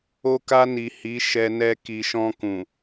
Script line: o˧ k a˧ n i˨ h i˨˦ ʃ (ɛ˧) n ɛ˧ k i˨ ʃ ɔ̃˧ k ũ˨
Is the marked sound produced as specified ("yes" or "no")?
yes